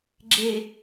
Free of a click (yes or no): no